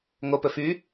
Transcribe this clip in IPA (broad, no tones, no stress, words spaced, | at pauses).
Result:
ŋopɵ fy